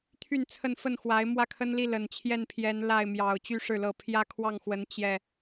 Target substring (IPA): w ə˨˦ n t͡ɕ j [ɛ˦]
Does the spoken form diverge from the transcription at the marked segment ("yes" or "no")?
yes